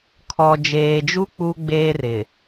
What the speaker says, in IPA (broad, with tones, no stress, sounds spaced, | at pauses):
kʰ ɔ˨ d͡ʒ eː˨ d͡ʒ u˦ k͡p u˦ ɡ͡b eː˦ r ɪ˨